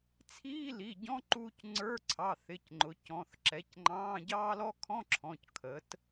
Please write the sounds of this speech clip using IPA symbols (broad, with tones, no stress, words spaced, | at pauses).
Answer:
t͡sʰiː˧˥˧li˩˧˩ɟɔ̃˧˥˧ǃuː˧c ŋ͡ǀə˞˧˥˧ ǀʰɑ˩˧˩ θɪ˩˧˩cŋ͡ǃʊ˩˧ cɔ̃˩˧˩θǁɛ˩˥c ŋ͡ǃɑ̃ː˧˥˧ɟɑː˥lɔ˥ kʰɔ̃˧˥˧ǁʰɔ̃˩˧˩c kʰə˩˥t